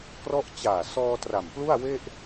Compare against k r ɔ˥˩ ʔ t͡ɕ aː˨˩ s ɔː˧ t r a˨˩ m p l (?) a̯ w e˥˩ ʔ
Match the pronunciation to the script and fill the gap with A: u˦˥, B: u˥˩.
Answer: B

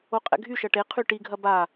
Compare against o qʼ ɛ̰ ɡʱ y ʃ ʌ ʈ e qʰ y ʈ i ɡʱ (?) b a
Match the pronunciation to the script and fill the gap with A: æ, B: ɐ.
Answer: B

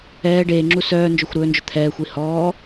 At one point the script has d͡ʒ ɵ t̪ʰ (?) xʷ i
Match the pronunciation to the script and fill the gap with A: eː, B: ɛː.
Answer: B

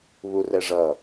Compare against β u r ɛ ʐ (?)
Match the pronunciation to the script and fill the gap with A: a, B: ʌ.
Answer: B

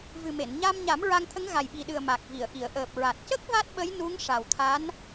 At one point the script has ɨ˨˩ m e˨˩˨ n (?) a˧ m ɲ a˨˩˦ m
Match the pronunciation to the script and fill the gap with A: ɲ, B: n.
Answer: A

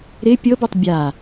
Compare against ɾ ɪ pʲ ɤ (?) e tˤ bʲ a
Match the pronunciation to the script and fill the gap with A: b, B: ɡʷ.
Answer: A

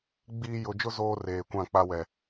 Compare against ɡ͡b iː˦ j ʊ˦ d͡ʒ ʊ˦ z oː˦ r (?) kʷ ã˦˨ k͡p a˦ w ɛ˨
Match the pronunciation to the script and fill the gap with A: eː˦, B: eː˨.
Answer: B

